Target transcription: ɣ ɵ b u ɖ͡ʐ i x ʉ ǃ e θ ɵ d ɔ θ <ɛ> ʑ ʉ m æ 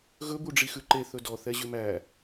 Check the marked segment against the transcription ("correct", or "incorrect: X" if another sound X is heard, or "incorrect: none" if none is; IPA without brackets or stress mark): correct